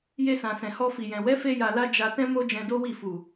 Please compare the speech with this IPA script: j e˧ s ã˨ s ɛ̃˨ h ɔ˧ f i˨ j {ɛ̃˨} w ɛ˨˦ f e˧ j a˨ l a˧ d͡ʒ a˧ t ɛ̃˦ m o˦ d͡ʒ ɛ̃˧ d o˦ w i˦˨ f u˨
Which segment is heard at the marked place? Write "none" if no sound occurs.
ɛ̃˨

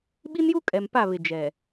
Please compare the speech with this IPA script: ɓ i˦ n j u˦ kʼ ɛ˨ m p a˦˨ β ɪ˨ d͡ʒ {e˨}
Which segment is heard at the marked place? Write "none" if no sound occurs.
ɛ˨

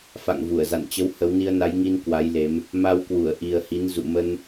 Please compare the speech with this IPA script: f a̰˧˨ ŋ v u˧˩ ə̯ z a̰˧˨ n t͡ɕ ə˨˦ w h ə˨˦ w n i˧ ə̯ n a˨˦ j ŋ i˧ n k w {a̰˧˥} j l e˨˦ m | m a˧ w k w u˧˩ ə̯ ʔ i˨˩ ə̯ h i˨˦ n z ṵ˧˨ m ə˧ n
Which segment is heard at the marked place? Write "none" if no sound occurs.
a˨˦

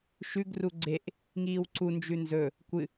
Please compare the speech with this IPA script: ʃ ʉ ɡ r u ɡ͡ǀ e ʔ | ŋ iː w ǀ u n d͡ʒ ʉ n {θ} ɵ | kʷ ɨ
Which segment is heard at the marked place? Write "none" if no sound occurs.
z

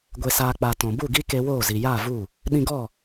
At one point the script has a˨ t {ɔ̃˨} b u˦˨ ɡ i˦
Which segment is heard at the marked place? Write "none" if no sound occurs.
ɔ̃˨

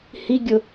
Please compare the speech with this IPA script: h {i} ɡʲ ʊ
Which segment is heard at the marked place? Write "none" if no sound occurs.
i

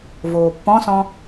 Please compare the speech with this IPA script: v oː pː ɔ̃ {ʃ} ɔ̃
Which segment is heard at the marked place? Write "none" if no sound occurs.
s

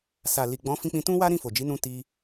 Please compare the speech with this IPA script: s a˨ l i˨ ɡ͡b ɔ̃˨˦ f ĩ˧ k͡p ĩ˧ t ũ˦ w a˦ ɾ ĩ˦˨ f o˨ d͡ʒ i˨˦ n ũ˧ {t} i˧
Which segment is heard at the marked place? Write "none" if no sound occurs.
t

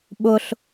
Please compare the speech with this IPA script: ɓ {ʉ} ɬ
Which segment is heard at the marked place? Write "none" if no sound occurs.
ʊ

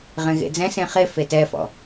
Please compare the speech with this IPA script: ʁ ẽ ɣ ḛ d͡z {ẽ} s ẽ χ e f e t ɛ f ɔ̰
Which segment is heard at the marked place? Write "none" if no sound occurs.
ɛ̃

